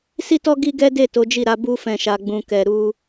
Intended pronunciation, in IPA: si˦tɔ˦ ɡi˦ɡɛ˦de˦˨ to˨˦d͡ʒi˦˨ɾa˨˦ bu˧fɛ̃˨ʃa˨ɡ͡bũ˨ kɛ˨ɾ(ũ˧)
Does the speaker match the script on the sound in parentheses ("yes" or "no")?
no